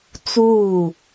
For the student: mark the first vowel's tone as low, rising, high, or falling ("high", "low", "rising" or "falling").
falling